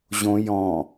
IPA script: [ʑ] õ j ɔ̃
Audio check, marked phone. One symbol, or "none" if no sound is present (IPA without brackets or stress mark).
ʑ